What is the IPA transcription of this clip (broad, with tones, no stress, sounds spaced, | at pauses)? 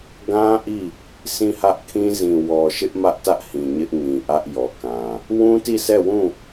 ɡ ã˦ ʔ i˦˨ | sʰ ĩ˦˨ h ä˦ ʔ kʰ ĩ˦ z ĩ˨ w ɔ˨ ʃ ɪ˦ ʔ m ä˦ ʔ t ä˦ ʔ h ĩ˨ ɲ ɪ˦ ʔ ŋ ĩ˨ ʔ ä˦ ʔ j ɔ˨ k ã˨ | w ũ˦ t i˦˨ s ɛ˦˨ w ũ˦˨